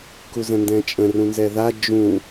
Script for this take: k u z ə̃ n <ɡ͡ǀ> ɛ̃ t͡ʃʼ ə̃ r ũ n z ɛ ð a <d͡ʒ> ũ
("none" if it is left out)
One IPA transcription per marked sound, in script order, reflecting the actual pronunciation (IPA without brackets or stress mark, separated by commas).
d, d͡ʒ